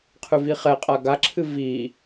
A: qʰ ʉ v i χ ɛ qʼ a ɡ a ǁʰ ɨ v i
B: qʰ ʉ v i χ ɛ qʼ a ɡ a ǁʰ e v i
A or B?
A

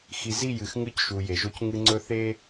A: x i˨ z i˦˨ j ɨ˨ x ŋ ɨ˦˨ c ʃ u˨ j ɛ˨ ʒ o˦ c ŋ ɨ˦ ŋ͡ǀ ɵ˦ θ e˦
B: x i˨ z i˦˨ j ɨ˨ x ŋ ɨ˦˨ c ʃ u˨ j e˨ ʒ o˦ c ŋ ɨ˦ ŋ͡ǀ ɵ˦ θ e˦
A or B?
B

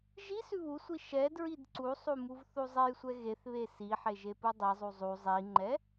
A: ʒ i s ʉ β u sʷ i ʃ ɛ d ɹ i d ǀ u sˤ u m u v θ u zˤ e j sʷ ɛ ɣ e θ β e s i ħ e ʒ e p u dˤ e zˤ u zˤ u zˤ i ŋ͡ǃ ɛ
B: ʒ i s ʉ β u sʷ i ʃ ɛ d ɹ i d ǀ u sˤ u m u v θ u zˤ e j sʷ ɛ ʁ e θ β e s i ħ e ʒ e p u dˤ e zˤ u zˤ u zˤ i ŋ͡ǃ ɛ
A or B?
A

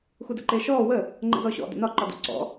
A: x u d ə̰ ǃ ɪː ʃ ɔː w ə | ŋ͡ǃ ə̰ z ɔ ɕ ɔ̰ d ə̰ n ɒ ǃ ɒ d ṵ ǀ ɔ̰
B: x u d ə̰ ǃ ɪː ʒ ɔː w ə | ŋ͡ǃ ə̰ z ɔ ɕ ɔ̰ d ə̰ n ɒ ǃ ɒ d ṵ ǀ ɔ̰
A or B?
A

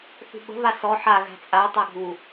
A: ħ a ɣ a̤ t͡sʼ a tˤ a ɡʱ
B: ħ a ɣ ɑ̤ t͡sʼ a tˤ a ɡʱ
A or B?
A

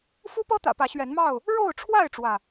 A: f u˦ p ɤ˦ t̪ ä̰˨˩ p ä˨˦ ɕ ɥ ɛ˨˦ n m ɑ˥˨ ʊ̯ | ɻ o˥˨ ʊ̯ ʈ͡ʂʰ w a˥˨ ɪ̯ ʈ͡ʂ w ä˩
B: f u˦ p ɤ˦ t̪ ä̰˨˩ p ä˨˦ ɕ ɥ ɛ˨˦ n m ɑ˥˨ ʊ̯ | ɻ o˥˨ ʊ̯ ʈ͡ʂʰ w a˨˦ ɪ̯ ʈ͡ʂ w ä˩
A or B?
A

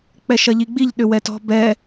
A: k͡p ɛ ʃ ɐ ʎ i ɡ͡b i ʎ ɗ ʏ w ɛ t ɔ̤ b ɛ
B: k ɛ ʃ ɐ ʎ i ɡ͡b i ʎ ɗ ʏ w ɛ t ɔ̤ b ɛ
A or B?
A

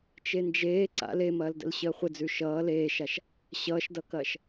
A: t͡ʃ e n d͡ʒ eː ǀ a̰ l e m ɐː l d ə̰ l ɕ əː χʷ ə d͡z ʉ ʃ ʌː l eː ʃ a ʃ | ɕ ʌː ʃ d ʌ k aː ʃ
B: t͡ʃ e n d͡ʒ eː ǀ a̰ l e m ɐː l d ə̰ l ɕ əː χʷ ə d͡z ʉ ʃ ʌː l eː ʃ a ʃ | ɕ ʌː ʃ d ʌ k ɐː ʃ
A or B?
B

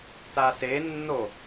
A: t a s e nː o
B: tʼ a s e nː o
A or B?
A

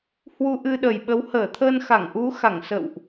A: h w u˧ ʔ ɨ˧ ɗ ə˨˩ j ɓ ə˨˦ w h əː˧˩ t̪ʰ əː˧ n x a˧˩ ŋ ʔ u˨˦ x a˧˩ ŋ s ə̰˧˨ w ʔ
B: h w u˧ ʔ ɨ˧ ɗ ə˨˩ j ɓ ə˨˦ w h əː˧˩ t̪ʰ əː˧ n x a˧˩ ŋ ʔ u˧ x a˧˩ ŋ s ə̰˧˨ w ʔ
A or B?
A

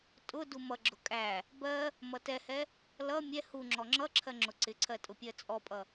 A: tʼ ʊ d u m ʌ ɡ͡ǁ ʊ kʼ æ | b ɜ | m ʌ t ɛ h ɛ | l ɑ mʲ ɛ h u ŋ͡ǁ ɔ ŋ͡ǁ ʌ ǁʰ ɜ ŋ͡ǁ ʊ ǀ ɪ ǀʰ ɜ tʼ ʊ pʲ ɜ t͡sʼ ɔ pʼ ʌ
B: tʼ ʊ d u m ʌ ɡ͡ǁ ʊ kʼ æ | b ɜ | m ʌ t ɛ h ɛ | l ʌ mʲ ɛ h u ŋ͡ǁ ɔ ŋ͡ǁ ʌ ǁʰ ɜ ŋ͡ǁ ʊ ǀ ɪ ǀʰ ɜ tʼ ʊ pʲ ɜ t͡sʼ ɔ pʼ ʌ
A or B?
B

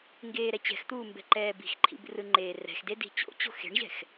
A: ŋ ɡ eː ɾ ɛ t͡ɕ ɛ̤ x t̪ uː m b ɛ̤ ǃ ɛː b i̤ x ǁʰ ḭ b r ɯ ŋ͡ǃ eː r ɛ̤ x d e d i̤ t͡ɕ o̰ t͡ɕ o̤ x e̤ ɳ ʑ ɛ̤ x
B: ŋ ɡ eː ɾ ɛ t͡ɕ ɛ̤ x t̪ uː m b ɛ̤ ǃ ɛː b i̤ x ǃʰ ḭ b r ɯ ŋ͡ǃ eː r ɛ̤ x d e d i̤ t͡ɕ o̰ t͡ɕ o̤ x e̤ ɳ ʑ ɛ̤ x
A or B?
B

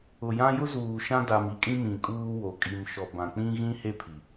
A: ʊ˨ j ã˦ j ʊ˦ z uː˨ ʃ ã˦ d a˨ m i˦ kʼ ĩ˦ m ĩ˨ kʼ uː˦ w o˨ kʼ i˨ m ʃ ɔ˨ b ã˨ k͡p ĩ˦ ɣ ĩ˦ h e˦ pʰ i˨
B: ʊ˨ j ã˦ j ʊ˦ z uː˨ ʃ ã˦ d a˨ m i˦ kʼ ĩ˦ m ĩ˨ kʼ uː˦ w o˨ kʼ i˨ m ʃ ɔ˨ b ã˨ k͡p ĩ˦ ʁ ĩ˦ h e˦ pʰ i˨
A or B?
A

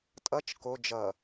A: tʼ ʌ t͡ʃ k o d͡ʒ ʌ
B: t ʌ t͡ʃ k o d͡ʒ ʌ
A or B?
A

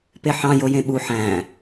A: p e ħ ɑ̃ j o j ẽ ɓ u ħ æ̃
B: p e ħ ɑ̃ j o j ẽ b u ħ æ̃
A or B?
A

